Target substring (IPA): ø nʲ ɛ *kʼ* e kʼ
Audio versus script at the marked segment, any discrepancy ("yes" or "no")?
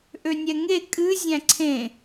yes